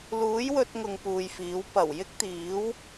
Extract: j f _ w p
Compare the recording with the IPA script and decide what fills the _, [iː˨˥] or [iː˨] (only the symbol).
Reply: iː˨˥